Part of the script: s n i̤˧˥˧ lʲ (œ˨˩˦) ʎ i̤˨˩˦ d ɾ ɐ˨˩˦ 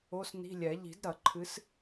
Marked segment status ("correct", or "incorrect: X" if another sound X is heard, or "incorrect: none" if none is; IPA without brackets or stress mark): incorrect: ɛ˨˩˦